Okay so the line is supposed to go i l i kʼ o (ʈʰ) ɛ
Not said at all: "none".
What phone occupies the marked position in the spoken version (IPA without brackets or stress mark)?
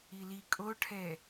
ʈʰ